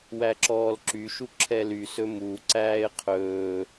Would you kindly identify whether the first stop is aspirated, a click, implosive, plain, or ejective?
click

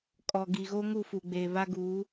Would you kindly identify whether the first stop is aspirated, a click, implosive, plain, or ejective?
ejective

